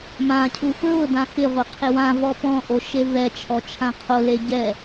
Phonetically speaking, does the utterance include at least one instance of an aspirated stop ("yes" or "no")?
yes